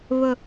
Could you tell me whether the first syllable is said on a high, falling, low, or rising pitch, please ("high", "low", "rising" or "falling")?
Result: low